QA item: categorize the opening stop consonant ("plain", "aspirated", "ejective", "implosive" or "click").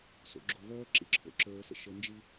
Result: click